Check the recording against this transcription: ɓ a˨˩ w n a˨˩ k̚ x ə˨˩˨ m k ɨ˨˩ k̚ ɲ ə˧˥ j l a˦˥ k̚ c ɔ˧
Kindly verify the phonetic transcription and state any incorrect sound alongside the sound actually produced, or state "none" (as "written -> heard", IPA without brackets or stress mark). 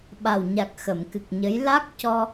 n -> ɲ